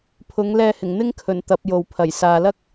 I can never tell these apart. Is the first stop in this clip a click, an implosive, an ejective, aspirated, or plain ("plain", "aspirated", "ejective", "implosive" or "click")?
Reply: aspirated